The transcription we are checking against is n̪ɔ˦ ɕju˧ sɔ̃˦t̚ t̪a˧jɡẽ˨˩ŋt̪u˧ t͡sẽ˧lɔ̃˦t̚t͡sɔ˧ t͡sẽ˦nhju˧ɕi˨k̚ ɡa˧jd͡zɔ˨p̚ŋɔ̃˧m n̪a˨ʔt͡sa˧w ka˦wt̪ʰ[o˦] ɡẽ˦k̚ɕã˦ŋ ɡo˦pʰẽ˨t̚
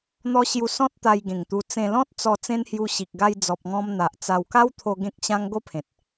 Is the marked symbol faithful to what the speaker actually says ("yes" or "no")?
no